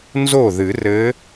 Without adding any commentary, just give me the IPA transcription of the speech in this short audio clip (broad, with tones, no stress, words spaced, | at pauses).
nzo˥˩ðɨ˨˩˦rɘ˧˥